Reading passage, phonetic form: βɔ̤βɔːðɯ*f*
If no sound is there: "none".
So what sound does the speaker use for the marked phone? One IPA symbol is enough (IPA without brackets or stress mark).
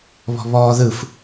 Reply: f